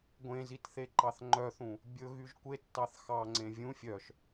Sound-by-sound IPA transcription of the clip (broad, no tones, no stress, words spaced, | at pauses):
ɡʷẽzit θeǃɑθŋ͡ǃœθũ | bʲɵ ɣyʒkʷetːɑθ xɑŋ͡ǀẽ vʲũ fʲœʃ